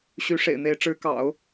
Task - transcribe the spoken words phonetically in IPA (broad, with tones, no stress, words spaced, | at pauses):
ɕy˧˥ʂḛ˨˩ɪ̯n̪e˧˥ɪ̯ ʈ͡ʂɻ̩˧˥kɑ̰˨˩˦ʊ̯